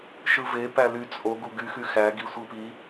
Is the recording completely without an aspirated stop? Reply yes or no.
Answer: yes